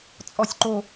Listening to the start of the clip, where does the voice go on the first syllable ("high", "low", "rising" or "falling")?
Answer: high